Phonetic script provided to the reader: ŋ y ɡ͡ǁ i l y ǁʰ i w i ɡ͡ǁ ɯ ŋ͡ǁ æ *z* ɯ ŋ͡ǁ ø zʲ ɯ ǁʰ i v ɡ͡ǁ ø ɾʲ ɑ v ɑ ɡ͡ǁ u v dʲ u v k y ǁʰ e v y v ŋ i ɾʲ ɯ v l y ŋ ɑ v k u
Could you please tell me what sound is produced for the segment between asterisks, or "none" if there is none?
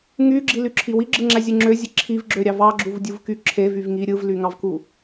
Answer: zʲ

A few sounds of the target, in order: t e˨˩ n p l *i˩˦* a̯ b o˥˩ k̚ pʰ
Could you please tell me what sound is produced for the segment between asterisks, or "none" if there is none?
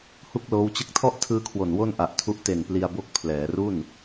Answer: i˧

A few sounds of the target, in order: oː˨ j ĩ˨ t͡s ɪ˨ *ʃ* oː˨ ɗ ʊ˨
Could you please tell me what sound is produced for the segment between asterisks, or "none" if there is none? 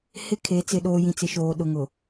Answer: ʃ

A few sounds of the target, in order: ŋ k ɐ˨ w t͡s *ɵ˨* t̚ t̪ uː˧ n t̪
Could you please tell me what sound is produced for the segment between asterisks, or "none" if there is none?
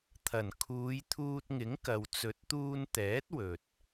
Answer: ɵ˨˥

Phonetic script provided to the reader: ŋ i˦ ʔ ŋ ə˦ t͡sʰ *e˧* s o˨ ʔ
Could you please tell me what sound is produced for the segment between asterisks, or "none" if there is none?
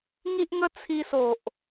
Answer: i˧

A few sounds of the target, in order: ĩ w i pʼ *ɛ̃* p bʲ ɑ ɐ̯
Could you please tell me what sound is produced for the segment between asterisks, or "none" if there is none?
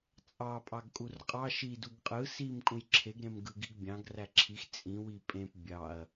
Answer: ẽ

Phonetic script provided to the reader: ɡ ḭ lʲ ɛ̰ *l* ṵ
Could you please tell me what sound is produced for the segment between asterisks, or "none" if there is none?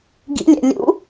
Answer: lʲ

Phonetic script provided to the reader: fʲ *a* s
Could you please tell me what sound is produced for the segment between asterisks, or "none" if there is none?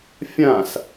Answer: ã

